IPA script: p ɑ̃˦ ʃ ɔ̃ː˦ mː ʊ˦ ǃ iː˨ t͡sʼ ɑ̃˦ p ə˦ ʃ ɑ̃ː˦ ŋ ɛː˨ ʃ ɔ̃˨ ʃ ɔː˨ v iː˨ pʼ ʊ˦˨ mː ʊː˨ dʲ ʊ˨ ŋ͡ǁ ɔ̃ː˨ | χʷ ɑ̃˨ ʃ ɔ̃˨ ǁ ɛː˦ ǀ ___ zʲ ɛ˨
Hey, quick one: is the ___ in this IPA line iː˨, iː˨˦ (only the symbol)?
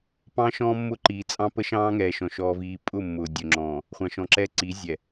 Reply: iː˨˦